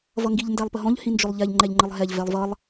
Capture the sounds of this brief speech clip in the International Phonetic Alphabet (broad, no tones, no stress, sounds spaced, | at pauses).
v ʌ ŋ ɡ i ʎ n d æ lˠ p ə ɦ ɔ̃ ʎ h ĩ n d͡ʒ ʊ lˠ ʎ ɛ ʎ ŋ͡ǃ ɛ ʎ ŋ͡ǃ ə lˠ ɦ ɛ ʎ v ɛ lˠ v ʌ lˠ